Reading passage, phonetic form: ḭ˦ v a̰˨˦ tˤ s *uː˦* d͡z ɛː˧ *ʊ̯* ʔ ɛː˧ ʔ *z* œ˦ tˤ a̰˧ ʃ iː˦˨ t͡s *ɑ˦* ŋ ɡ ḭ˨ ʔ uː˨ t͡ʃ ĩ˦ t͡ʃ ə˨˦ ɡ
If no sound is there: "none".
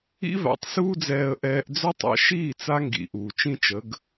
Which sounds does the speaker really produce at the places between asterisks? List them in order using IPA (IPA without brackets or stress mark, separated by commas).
uː˦, ə̯, d͡z, a˦